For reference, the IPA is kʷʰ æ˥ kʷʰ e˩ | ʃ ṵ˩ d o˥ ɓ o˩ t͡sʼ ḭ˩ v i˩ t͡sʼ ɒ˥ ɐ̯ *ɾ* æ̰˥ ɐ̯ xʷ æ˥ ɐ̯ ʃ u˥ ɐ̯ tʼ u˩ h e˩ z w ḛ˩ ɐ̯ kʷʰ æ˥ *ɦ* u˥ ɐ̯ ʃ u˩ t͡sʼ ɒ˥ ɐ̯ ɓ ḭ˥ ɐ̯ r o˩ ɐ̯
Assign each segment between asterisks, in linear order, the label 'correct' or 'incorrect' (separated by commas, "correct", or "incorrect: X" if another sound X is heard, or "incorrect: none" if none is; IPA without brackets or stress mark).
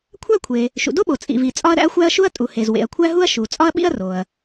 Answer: correct, correct